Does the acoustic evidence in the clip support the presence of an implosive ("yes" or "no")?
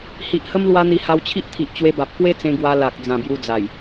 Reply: no